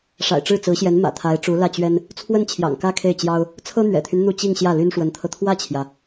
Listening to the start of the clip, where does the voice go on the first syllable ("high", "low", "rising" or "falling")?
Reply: low